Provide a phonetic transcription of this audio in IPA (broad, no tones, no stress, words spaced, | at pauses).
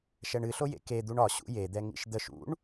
ʃɛɳɨɬojḛ ked̪uɳ ɒɕṵ jed̪ɛ ŋḭʃd̪əʃ ṵɳ